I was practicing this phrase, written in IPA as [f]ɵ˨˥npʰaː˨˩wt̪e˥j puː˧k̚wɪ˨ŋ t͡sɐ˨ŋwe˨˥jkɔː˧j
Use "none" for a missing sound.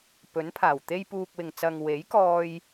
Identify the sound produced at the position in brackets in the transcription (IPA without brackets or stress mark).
p